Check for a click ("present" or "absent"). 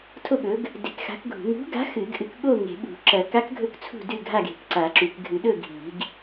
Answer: present